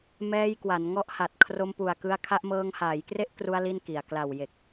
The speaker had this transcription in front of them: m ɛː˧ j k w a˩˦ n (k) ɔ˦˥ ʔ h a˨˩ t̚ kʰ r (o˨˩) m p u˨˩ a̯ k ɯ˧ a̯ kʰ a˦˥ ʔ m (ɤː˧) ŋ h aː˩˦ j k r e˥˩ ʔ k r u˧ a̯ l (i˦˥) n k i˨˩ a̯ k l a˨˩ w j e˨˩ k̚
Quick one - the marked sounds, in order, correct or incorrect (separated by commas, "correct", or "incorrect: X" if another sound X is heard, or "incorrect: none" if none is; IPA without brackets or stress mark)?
incorrect: ŋ, incorrect: o˧, correct, incorrect: i˥˩